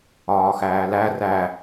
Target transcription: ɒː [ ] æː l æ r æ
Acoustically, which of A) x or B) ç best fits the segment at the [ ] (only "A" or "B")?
A